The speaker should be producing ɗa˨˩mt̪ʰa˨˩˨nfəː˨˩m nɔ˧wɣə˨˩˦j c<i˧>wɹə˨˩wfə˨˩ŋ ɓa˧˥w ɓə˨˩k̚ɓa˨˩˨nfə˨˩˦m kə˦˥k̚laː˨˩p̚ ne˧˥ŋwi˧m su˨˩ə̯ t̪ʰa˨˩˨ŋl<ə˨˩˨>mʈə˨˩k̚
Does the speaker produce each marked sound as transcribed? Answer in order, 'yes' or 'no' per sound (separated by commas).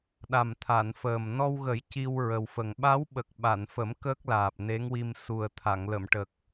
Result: yes, yes